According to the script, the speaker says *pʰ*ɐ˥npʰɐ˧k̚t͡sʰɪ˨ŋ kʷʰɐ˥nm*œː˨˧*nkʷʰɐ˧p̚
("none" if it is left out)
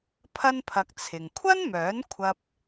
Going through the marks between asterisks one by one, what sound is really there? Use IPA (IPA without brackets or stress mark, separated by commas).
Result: pʰ, œː˨˥